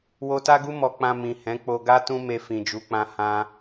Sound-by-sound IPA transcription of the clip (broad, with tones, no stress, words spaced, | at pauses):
wo˧ta˦ɡu˦ mɔ˧k͡pã˧ mĩ˨ hɛ̃˨˦k͡po˧ ɡa˦tũ˦ me˧fĩ˨d͡ʒu˨˦k͡pã˧ hã˧